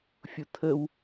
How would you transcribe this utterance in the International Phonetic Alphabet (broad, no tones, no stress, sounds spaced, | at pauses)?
fʲ ʊ t̪ʰ ə w